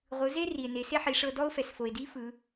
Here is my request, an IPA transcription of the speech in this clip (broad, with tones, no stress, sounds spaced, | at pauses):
ʁʷ ɯ˩˧ z e˥ r i˩ e̯ n e˩˧ s e˥ ħ i˩˧ ʂ ɤ˧ d ɔ˥ o̯ f ɛ˩ s f o˩ e̯ d i˧˥ f ɯ˩˧